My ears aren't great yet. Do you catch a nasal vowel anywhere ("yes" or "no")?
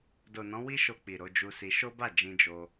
yes